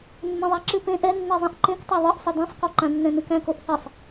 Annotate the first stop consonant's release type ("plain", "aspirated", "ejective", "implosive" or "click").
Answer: click